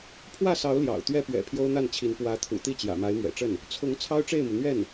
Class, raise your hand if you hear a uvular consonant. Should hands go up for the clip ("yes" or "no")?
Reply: no